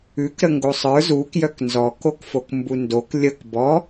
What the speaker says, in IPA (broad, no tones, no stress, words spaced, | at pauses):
ʉkɾə ŋɡosˤə˞ zukjœk nzɔkokfok mbundok lʲək bɔ